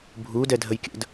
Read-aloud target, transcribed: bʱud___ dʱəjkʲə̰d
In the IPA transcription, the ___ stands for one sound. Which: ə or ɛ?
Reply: ɛ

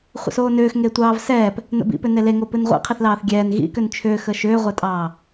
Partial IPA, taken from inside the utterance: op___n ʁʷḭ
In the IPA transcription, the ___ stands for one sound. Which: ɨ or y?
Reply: ɨ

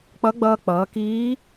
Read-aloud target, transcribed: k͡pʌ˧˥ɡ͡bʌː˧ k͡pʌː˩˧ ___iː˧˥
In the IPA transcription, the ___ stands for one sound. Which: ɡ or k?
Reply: k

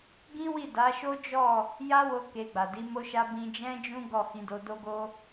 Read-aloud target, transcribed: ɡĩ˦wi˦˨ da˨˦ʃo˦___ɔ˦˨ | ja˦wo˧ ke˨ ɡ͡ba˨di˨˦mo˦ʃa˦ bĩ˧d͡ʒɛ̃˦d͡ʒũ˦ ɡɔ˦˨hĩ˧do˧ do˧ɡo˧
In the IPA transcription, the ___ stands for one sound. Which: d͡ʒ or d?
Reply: d͡ʒ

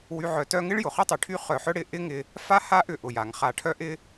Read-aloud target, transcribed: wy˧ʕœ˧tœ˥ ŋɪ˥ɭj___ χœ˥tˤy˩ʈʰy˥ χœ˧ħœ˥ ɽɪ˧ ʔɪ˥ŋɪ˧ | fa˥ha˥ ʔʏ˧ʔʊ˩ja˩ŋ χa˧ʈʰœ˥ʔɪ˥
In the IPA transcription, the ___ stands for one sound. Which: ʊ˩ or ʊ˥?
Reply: ʊ˩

